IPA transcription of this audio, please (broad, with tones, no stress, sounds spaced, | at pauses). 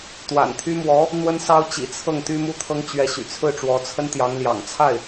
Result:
t̪ w a̰˨˩ n t̪ʰ y˥ m w ɔ˧˥ | n̪ w ə˥ n s ɑ˥ ʊ̯ t͡ɕ ḭ˨˩ t͡sʰ ɤ˥˩ ŋ t̪ y˥ m u˥ t̪ʰ ɤ˥ ŋ t͡ɕ ɥ ɛ˧˥ ɕ y̰˨˩ t͡sʰ ɹ̩˥˩ ʈ͡ʂ w ɔ˧˥ t͡sʰ ə˥ n t̪ j ɑ˧˥ ŋ l j ɑ̰˨˩ ŋ t͡sʰ a˥˩ ɪ̯